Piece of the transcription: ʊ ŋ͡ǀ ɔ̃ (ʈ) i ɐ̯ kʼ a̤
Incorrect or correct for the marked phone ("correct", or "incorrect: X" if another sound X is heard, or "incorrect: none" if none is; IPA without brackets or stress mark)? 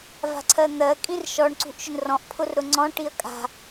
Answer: correct